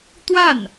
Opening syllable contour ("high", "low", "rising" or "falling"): falling